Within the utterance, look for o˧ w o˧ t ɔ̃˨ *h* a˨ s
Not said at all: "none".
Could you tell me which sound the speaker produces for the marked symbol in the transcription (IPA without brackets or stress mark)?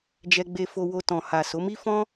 h